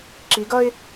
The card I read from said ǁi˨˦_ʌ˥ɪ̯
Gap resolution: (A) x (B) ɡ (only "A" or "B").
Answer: B